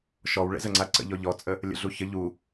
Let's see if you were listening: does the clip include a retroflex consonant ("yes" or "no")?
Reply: yes